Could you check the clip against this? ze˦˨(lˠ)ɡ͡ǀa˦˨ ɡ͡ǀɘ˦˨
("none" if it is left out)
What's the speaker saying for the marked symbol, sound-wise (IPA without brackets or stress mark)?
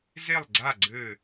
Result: lˠ